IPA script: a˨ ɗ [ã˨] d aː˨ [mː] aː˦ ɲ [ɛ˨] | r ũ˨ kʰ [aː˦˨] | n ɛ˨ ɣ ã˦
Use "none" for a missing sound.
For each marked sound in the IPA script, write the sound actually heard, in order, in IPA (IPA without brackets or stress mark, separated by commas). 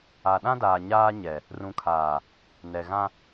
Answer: ã˦, ɲ, ɛ˨, aː˨